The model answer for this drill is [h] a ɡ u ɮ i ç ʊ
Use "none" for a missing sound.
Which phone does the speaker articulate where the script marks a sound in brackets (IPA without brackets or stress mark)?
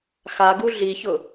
x